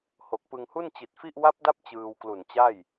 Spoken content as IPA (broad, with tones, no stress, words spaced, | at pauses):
ho˨˩k̚pɯ˧ŋhu˥˩n t͡ɕi˨˩t̚fi˥˩ʔ wa˦˥p̚da˦˥p̚ t͡ɕɯː˧wklu˨˩nt͡ɕa˥˩j